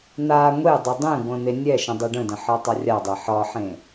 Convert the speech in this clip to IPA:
n̪a ŋʷedˤɪ dˤẽɡʷə̃ n̪enʲɛʃə̃ dˤɛɖə̃də̃ ħɒtˤarʲadˤɛ ħɒħẽ

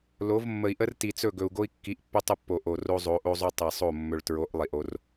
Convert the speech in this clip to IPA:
lo˨˦v mːə˨i̯ʔə˦r ti˨t͡sɵ˦˨ɡɵ˨u̯ ɡo˦i̯kːi˨˦ʔpːɵ˦ tˤə˦pːo˨ ʔo˨ ro˦zˤo˨˦ʔo˦zˤo˦ tˤi˨sˤo˦˨ mːɵ˨ɭtɹo˨˦ʔ lˠi˨ʔo˦r

